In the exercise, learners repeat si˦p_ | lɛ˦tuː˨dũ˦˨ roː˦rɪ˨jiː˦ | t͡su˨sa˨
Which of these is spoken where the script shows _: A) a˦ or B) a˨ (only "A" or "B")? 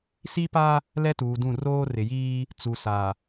A